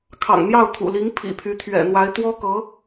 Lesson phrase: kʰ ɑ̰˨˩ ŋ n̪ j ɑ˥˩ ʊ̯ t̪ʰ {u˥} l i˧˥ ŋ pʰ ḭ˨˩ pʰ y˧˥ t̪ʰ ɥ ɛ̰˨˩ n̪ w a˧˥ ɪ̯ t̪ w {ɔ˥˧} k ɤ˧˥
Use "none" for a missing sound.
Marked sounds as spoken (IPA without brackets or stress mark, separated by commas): ṵ˨˩, ɔ˥